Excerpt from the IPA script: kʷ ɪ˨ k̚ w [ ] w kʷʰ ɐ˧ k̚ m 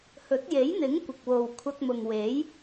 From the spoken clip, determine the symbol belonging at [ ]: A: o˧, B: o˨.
B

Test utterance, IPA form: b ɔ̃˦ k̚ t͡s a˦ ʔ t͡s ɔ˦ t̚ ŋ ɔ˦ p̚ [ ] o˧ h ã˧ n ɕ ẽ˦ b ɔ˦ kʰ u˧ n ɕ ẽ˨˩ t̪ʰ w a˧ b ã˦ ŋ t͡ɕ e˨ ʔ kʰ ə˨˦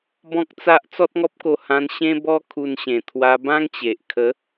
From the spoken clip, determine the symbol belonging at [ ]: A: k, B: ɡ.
A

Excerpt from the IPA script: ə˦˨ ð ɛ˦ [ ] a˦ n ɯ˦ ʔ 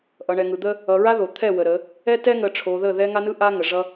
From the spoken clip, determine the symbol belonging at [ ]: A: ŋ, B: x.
A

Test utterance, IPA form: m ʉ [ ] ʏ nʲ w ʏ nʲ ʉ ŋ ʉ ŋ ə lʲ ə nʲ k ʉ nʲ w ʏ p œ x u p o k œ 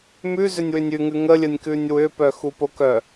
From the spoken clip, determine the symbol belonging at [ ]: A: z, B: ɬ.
A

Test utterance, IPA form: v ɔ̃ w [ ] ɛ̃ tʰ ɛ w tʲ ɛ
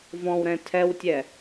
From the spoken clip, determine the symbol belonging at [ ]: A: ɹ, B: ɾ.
B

